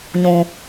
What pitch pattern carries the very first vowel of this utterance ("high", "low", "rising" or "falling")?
low